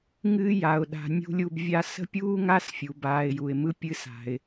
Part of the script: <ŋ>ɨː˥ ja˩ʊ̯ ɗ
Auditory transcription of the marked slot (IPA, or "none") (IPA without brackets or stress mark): ŋ